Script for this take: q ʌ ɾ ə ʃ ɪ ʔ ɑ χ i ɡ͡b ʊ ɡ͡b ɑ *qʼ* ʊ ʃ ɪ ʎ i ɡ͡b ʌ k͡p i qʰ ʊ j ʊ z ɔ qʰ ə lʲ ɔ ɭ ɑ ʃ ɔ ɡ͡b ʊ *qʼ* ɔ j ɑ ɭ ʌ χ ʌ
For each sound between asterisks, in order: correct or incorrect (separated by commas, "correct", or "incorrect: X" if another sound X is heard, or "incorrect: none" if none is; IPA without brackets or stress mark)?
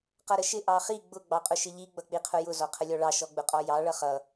correct, correct